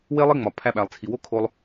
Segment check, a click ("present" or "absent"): absent